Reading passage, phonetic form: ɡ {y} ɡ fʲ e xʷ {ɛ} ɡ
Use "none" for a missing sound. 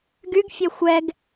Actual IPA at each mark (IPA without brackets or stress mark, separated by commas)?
y, ɛ